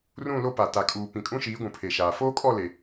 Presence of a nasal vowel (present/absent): present